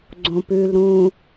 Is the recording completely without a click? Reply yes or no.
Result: no